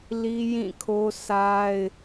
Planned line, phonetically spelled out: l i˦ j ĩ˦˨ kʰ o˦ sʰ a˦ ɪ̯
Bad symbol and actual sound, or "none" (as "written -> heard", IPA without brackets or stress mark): none